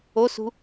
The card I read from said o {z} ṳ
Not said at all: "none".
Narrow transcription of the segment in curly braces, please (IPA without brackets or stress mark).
s